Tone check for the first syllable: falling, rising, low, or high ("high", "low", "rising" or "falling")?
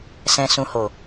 low